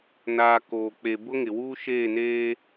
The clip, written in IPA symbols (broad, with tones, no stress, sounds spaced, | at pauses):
n aː˨ k oː˨ k͡p e˨ b ʊ˦ ŋ ɪ˨ w uː˦ ʃ eː˦˨ n eː˦